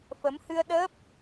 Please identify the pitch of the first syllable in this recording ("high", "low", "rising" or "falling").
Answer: rising